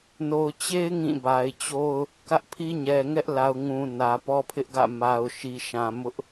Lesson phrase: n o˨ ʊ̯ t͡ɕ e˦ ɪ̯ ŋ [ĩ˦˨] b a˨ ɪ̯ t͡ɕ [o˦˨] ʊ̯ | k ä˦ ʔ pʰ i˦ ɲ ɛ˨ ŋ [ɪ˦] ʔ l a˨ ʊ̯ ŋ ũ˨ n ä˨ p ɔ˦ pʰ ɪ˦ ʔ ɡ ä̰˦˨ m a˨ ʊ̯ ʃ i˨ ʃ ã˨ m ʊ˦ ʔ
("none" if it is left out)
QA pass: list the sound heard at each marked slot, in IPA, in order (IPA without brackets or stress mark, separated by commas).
ĩ˦˨, o˦, ɛ˦